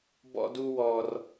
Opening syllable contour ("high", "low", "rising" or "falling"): high